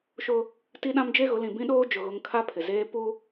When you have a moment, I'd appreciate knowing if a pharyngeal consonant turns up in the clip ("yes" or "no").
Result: no